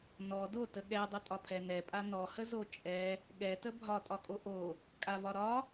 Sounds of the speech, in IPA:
n ɔ d o t ə ɠ ɛ dˤ ə tʼ ɒ pʰ ɛ n ɛ pʼ a n ɔ h ə z o t͡ʃʼ ɛ | ɠ ɛ t ə bʱ ɒ tʼ ɒ kʼ o ʔ o | kʼ a v ɒ ɾ ɒ

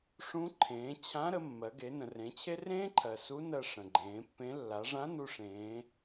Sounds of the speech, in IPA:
ʂ ũ˧˥ ǃʰ ẽː˩˧ t͡ɕʰ ã˧˥ ɾ ə˩˧ mː ɜ˩˧ ɡ e˩˧ n ə̃˩ r ẽ˩˧ t͡ɕʰ e˥ r ẽː˥ ǃʰ ɜ˩ s u˧˥ n ɜ˧ ʂ ə̃˩ ɡ͡ǃ ẽː˩˧ pː ẽ˧˥ lː a˩˧ ʐ ã˧˥ n u˧ ʂ ẽː˩˧

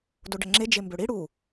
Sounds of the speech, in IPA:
d o ɖ ə ŋ͡ǁ e d͡ʒ e m b ø ɽ i ɽ u

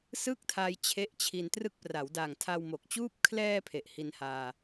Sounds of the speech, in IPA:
s ɯ˥˩ k̚ tʰ a˧ j t͡ɕʰ e˦˥ ʔ t͡ɕʰ i˧ n t r ɯ˦˥ k̚ p r a˩˦ w d a˨˩ ŋ tʰ a˧ w m o˨˩ k̚ t͡ɕ uː˥˩ p̚ kʰ l ɛː˧ pʰ e˨˩ ʔ h i˧ n h aː˧

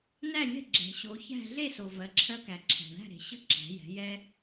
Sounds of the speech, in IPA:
n æ˥˨ lʲ ɛ̤˥˨ ɡ͡ǁ ɛ̤˩ ɕ o˩˧ ç æ̤˥˨ ɮ e˥˨ s o˩ v ɜ˩˧ ǁʰ ɜ˥ k æ˩ ǁʰ æ̤˩ ɳ æ̤˥˨ ɾ e̤˩ ɕ ə̤˥˨ ǁ æ̤˩˧ j ɛ̤˩˧ j ɛ˥

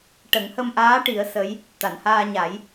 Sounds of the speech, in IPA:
ʈ ə˨˩˦ ŋ h ə˧ m ʔ aː˧˥ ʈ i˨˩˦ ə̯ s ə˧˥ j | t̪ a˨˩˨ n h aː˧ ɲ a˨˩˦ j

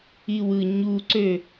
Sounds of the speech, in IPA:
i w ɯ ɲ u ǀ ø

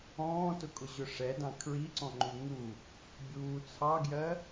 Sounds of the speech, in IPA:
ɔ̃ː t ʊ kʼ ʊ ʑ ʊ ʂ ɛ d ɑ̃ kʰ ɹ i ǀ ɔ̃ ŋ͡ǃ u ŋ u | bʲ uː t͡sʰ ɑ ɡ j ɜ

